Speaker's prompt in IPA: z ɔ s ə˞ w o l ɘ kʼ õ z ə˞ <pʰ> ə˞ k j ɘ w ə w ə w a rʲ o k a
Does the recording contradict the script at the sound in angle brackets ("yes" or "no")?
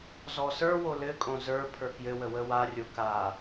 no